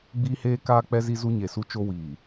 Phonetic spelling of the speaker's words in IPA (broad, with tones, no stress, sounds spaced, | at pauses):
ɡ͡b iː˦ h eː˦ k aː˦ k͡p ɛ˦ z i˦ z u˦ ɲ e˨ s u˦ t͡ʃ o˦ w iː˨